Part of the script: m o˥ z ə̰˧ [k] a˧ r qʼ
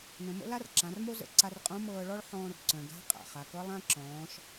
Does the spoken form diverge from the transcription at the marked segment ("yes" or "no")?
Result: yes